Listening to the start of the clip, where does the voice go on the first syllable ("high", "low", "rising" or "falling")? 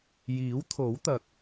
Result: rising